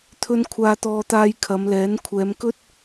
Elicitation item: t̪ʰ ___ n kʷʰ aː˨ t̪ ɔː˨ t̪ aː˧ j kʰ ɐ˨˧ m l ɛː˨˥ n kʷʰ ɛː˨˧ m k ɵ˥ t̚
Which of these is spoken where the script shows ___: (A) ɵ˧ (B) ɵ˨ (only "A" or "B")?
B